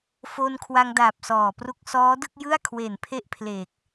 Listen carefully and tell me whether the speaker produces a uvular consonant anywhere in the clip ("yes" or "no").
no